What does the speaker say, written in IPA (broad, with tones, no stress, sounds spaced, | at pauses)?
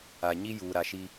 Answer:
a˨ ɲ i˦ j uː˨ ɾ a˨ ʃ i˦